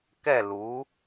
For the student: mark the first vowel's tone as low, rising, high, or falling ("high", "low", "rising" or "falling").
falling